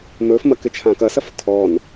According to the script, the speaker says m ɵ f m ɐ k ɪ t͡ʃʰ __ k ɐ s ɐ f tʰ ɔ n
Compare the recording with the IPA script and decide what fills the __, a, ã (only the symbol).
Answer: ã